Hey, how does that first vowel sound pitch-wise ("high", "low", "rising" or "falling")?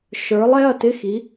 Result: rising